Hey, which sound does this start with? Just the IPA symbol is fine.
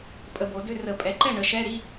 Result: pʼ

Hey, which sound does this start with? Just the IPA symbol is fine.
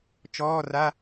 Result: t͡ʃ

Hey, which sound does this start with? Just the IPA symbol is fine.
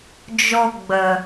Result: d͡ʒ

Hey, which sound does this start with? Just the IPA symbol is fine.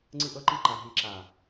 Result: ŋ͡ǀ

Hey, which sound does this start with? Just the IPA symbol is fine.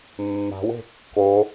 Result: mː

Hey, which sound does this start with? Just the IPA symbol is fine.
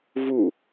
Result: v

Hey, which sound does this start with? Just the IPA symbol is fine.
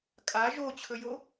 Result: kʼ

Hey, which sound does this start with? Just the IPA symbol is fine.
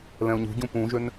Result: l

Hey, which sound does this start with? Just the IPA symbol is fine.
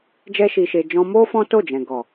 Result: d͡ʒ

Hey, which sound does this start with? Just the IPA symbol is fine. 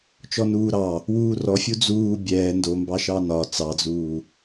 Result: t͡ʃ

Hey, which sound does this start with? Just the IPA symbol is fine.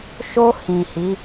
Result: ʃ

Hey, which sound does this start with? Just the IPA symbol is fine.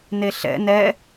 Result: n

